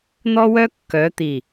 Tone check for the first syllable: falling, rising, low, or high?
high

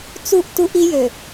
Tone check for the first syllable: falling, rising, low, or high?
falling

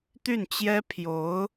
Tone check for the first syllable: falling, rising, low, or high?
falling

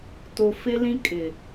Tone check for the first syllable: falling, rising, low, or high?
low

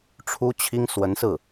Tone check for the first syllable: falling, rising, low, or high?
high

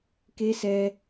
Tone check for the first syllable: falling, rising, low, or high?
high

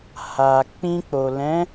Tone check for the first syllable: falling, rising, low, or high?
low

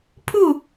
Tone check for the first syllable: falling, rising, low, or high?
falling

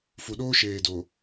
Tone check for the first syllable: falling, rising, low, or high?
low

